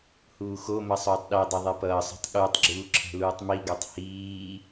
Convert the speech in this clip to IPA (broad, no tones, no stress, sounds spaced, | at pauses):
h uː x o m ʌ sˤ oː tˤ ɗ e dˤ ʌ ðˤ e p ʌː sˤ ṳ tˤ ɠ u tˤ ɡ͡ǁ uː ǁʰ ɛ̤ l uː tˤ m i ɡ o tˤ h iː